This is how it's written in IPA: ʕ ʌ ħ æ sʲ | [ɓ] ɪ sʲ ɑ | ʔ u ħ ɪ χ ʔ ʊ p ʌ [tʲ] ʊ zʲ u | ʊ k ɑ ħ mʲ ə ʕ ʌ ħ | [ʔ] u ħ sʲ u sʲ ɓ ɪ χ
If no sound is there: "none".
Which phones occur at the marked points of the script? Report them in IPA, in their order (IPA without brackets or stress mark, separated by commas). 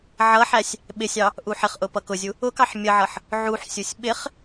ɓ, k, ʕ